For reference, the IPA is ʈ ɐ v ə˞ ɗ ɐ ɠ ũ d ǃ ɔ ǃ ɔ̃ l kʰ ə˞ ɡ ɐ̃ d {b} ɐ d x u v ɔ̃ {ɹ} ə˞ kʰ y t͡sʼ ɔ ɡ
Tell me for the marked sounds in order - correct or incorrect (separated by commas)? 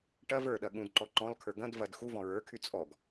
incorrect, correct